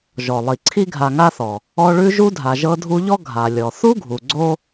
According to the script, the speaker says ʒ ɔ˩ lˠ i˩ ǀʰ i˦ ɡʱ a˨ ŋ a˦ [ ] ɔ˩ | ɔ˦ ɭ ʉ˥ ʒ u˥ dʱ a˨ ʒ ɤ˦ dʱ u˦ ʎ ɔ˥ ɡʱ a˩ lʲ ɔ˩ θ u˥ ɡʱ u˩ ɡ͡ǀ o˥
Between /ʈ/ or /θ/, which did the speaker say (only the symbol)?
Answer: θ